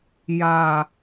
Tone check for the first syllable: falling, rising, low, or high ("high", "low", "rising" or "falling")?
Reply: low